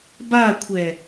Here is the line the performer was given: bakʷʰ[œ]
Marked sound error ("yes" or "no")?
yes